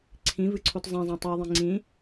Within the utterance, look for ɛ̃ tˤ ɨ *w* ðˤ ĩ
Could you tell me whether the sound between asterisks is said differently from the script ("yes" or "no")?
no